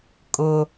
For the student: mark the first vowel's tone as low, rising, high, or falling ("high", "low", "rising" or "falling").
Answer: low